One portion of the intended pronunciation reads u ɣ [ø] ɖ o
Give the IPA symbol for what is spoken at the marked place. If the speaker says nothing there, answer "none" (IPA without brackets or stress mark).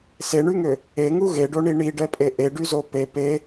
e